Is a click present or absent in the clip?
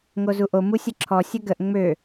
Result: present